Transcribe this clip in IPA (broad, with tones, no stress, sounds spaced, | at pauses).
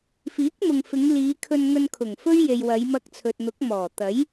f iː˨˥ k̚ m ʊ˨ ŋ f ɪ˨˧ ŋ l iː˨˧ kʰ ɵ˧ n ŋ ɵ˧ n kʰ ʊ˨˩ ŋ f ɵ˥ ɥ j e˨ j w ɐ˨˧ j m ɐ˧ k̚ t͡sʰ ɵ˨ t̚ n̪ ʊ˨˥ k̚ m ɔː˨˩ t̪ ɐ˨˥ j